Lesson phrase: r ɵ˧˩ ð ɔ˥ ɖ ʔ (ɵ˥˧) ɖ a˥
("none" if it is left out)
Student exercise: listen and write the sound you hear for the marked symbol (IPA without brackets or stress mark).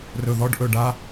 ɵ˧˩